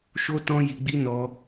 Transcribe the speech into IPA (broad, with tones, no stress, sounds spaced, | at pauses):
ʃ o˦ t ɔ̃˦ j i˧ ɡ͡b i˦ n ɔ˦